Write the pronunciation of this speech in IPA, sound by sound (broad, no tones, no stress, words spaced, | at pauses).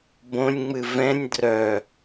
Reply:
bõnʲŋ͡mɨ vɛ̃nʲ drœ